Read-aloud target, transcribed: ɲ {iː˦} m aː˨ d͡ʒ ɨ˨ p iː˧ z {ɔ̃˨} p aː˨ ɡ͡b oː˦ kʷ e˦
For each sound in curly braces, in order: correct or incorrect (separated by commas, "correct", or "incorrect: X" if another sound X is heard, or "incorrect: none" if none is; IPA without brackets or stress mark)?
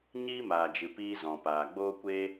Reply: correct, correct